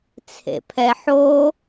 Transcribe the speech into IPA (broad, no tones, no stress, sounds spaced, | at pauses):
t͡sʰ ḛ pʰ ɛ ħ o